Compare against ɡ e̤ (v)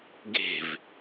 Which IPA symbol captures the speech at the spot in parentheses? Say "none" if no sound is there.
v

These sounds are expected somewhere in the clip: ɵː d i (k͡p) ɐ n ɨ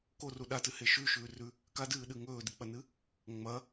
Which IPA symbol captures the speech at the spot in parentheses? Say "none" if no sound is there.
k͡p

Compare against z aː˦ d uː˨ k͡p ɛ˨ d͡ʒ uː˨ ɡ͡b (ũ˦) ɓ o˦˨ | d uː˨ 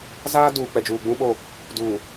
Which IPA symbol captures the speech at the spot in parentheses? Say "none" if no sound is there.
ũ˦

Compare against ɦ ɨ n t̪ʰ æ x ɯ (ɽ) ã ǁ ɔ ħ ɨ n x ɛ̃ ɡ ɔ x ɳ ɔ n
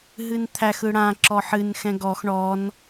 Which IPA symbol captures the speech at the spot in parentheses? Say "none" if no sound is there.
ɽ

